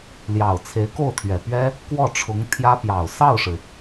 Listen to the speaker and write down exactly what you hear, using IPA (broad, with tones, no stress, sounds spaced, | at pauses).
l j ɑ˨˩ ʊ̯ t͡sʰ e˧˥ ɪ̯ k o˥˩ ʊ̯ t̪ʰ ɥ ɛ˨˩ p ɥ ɛ˥ | k w ɔ˥˩ ʈ͡ʂʰ ʊ˧˥ ŋ t̪ʰ j ä˥ p j ɑ˨˩ ʊ̯ s ɑ˥˩ ʊ̯ ʂ ɻ̩˩